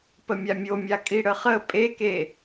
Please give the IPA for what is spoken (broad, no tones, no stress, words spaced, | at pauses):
pəmʲamʲomʲa kʼiɽəχə pʼeke